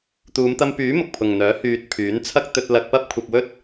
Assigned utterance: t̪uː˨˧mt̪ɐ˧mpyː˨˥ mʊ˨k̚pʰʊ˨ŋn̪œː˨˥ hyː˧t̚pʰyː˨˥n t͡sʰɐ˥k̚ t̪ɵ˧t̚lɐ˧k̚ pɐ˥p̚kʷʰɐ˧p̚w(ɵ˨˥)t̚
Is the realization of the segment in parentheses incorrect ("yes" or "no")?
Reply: yes